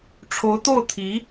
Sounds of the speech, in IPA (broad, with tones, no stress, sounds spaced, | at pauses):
ʈ͡ʂʰ o˧˥ ʊ̯ t̪ o˥˩ ʊ̯ t̪ʰ i˧˥